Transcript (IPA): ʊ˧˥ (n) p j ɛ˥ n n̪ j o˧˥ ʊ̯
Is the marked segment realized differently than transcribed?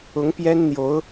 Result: yes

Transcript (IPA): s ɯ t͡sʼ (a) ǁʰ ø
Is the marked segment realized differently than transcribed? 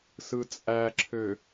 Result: yes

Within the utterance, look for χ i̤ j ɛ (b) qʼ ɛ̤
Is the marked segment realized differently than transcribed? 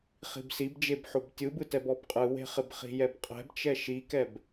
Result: no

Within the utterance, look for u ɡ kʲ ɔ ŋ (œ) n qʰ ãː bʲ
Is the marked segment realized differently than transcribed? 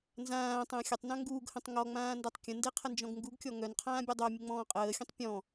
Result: no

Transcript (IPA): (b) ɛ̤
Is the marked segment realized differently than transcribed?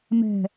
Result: yes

